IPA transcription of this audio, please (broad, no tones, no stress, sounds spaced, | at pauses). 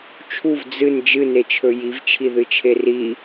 t͡ʃʰ u v d͡z ɨ n d͡ʒ ɨ n e t͡ʃʰ ɵ j i v t͡ʃʰ i ð ɨ t͡ʃʰ e r i